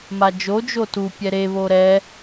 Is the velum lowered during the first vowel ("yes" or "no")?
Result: no